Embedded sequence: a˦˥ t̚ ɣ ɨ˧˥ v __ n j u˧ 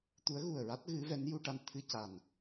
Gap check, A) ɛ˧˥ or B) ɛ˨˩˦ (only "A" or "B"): A